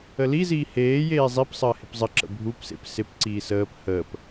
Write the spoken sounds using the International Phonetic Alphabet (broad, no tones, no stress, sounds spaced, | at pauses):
ə l i z iː h eː j eː zˤ i p sˤ əː h ɪ p zˤ ə ǁ ə̰ bʱ u p s ḛ p s ɪ p ǀ iː s əː p h əː p